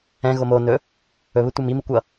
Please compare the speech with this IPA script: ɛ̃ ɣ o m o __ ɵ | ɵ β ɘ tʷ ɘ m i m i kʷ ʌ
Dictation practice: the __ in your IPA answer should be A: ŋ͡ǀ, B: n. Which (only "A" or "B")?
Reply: B